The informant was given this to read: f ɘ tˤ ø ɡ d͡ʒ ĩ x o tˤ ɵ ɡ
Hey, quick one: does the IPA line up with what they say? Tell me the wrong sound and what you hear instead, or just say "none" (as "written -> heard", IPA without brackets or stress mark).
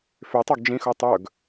ɘ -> ø